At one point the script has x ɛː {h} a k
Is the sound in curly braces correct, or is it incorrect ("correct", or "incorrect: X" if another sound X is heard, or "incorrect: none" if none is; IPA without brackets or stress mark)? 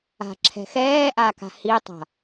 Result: incorrect: ʔ